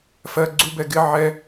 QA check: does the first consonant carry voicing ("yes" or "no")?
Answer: no